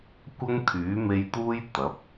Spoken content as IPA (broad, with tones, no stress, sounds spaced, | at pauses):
kʷ ɐ˥ ŋ t̪ʰ yː˨˥ m e˧ j t̪ uː˥ j t̪ ɐ˨˥ p̚